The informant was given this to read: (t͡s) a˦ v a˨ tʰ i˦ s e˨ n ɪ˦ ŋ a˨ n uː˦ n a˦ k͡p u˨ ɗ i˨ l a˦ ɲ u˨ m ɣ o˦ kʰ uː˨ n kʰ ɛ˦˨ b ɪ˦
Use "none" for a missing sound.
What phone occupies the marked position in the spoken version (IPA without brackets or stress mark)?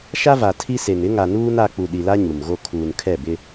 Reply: ʃ